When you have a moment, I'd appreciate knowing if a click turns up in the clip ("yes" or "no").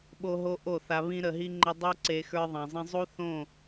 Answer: yes